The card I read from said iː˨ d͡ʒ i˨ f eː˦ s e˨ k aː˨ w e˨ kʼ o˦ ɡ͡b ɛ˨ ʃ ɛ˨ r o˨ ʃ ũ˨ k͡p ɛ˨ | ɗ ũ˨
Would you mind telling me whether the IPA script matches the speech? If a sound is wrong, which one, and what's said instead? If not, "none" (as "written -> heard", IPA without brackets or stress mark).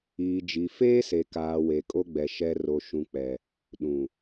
none